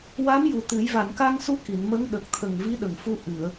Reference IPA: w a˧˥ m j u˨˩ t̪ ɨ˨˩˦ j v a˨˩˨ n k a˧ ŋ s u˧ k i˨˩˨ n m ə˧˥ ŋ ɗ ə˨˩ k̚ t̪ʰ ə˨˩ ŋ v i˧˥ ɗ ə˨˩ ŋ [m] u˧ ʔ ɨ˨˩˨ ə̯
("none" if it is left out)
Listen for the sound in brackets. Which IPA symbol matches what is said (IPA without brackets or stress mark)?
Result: f